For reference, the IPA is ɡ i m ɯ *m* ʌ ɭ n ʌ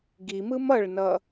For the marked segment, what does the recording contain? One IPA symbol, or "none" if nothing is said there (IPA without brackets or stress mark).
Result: m